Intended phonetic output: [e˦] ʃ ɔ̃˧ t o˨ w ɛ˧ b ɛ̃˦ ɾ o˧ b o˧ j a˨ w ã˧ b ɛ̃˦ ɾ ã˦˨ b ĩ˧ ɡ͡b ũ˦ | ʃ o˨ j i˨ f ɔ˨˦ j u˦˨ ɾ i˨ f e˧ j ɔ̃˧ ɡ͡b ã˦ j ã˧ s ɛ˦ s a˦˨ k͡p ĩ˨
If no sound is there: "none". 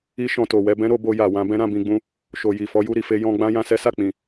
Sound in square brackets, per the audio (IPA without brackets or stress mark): i˦